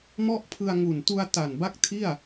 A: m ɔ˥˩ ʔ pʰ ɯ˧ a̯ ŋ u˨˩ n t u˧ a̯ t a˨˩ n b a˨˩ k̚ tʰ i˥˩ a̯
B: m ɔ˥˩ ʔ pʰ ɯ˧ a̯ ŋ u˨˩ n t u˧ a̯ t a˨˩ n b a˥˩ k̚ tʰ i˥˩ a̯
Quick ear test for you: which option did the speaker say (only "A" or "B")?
B